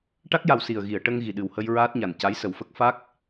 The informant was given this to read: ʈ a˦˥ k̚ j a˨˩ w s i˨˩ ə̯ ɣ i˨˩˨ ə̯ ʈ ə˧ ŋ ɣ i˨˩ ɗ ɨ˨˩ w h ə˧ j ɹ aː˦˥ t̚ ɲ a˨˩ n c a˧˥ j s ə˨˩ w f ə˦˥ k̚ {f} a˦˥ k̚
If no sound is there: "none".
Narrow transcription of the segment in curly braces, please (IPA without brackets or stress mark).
f